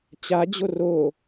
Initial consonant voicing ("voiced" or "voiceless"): voiceless